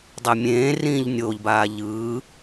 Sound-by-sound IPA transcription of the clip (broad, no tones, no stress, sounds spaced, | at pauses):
dˤ e mʲ ẽː r ĩː ʎ nʲ o ʎ b aː ʎ ɯː